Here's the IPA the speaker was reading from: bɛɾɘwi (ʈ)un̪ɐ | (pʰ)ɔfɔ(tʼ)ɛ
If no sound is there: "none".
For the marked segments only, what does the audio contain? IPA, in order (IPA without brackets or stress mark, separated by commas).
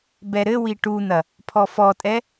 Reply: ʈ, pʰ, tʼ